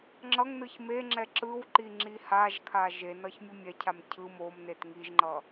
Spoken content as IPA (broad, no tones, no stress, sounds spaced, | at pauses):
ŋ͡ǁ ʌ ŋ n ɯ ç m e ŋ͡ǁ ɛ ǁ ɯ w ǃ i ŋ͡ǁ i h a ʒ kʰ a ʒ e n ʌ ç mʲ u mʲ ɛ cʰ a m cʰ ɯ m o m n e t ŋ i ʒ ŋ͡ǃ ʌ